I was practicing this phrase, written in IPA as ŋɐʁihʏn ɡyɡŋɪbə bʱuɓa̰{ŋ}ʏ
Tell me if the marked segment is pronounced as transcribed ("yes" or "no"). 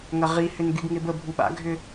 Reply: no